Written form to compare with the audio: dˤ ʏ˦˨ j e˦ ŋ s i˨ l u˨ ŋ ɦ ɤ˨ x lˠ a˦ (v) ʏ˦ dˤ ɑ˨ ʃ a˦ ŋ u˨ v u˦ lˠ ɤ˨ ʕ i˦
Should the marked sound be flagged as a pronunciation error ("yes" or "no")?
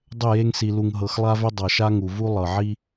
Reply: no